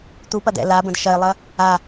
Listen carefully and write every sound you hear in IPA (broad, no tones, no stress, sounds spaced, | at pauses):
t̪ u p ɐ d̪ ɛ̰ l a b ə̃ d ʃ ɐ ɪ̯ lˠ ɐ | a